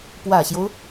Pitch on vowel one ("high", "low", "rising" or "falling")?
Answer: low